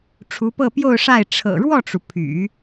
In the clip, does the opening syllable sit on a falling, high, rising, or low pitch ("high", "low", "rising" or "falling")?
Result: rising